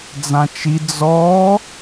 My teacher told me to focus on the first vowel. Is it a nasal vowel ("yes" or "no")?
yes